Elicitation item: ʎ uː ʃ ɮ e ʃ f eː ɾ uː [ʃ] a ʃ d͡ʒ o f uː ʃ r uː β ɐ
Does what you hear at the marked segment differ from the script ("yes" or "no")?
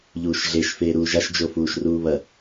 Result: yes